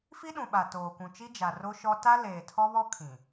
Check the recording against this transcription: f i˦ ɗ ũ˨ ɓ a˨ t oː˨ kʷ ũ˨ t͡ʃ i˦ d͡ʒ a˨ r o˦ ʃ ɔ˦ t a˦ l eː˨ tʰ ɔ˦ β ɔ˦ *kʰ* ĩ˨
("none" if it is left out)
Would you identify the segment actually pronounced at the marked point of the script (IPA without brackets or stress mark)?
kʰ